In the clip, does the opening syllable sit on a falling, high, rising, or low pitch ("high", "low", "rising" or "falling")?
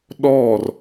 falling